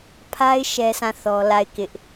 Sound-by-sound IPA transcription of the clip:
pʰa˦ɪ̯ ʃɛ˦sʰã˦˨ θɔ˦ la˦˨ɪ̯kɪ˦ʔ

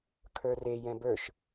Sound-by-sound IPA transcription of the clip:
kʰə˞re jɛ̃bə˞ʃ

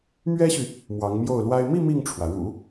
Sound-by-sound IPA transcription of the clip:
mɥɛ˥ɕy˨ | mwɑ˧˥ŋmjo˥˩ʊ̯lwa˥ɪ̯ mi˥˧ mi˥˩ŋʈ͡ʂʰwä˩ ɻṵ˨˩˦

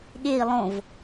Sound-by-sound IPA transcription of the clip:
ɠei̯ lˠõv

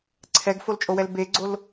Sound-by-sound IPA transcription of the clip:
ǀʰɛɡfolt͡ʃʼowɛl beɡ͡ǀol

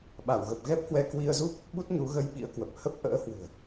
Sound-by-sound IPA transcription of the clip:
ɓa˧˩wɣə˨˩p̚ ɣɛ˦˥p̚hwɛ˧ kwi˧ə̯zu˦˥p̚ | ɓu˦˥t̚ɲu˨˦ɣə˧j ɓḭ˧˥ə̯kwə˨˩p̚ hə˦˥p̚ ʔə̰ː˧˥hwɨ̤˨˩ə̯

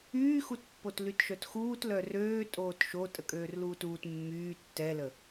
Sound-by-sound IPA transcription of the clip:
yːxutpːot lytʃœtxuːt lœrøːtʼoːt ʃo tʼəkʼøːrluːtuːt mːyː tːɛlə

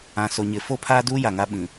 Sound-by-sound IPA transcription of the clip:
ã˨so˨ɲɪ˨˦ fo˦pʰaː˦duː˦ ja˨ŋa˦ɓĩ˨

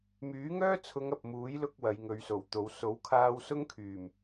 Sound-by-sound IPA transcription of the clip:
myː˨˥ŋœː˥t͡sʰʊ˨˧ŋ ɐ˨p̚ muː˨˥jlʊ˧k̚ wɐ˨˧jŋɵ˨˧ɥso˨˩wt̪o˨˧w so˨˥wkʰaː˧w sʊ˥ŋkʰyː˨˩m

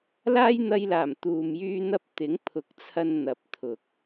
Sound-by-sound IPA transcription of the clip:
laː˥j n̪ɐ˧jlaː˨˩m t̪uː˧mjyː˥n̪ɐ˥p̚ t̪ɪ˨˥ŋpʰʊ˨˥k̚t͡sʰɐ˧n n̪ɐ˨˥p̚t̪ʰʊ˨k̚

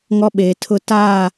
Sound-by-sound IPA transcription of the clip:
ŋɔ˦ ɓeː˨tʰʊ˦ taː˦˨

